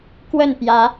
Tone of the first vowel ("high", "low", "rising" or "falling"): falling